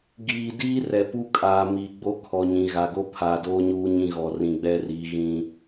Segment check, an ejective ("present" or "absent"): present